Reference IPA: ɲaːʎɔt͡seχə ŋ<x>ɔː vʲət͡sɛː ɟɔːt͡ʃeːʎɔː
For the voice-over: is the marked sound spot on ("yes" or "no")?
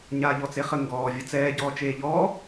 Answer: no